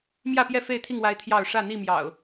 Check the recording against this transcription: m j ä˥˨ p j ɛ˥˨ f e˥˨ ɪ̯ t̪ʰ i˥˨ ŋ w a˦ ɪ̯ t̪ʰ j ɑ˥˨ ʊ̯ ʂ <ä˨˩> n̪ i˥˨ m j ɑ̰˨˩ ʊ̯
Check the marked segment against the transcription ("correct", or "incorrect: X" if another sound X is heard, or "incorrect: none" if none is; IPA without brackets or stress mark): incorrect: ä˥˨